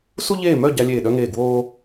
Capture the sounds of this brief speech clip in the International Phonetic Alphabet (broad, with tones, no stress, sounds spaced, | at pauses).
s u˥ ʎ eː˥˧ m œ˥˧ ɟ a˥ lʲ eː˥˧ ɗ œ˥ ŋ eː˥˧ ɡ w oː˥